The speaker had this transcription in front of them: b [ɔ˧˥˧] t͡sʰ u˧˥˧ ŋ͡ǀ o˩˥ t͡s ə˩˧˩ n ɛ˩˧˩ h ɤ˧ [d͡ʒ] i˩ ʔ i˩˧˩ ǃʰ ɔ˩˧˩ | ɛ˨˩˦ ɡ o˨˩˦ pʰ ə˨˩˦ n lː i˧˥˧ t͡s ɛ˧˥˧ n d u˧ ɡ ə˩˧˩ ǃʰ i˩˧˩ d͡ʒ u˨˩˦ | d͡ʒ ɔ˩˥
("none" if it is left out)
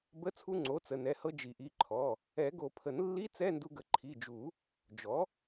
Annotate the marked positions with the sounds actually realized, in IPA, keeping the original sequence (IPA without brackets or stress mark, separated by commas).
ə˧˥˧, d͡ʒ